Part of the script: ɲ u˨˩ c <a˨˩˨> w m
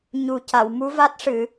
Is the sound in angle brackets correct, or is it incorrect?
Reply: correct